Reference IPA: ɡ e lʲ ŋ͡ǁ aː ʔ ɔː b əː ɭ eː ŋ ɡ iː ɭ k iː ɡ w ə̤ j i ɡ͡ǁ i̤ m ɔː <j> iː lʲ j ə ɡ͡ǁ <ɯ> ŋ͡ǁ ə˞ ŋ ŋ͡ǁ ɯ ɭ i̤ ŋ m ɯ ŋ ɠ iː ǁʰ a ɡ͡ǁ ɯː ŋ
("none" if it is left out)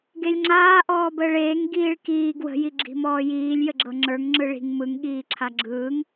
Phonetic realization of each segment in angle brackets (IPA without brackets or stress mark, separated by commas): j, ɤ